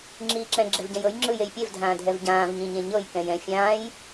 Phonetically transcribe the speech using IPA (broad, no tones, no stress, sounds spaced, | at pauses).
ŋ͡ǁ iː ǁ ɛ̃ ɡ͡ǁ ɛ v ɟ ɛ̃ j ɤ j ŋ͡ǁ ɯ j e j pʲ e v dʱ ãː dʱ ɛ v ɟ ãː v ɲ ĩ ɲ ẽ ɲ ɤ j k ɛ̃ j ɛ̃ fʲ ãː j